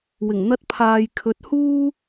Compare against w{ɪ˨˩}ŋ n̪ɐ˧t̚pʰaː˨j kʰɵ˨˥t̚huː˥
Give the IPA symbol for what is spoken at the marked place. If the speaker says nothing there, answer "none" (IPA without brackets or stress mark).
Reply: ɪ˨˩